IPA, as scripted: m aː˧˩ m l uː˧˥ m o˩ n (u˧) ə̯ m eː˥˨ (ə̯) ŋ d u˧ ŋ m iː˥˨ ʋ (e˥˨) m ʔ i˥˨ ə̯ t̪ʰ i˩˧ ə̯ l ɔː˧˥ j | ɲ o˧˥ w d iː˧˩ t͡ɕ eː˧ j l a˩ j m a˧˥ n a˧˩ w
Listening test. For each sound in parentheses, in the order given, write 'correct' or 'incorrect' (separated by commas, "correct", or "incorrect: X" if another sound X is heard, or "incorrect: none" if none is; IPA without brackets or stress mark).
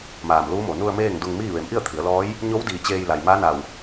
correct, incorrect: none, incorrect: e˩˧